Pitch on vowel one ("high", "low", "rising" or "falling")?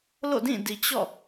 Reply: falling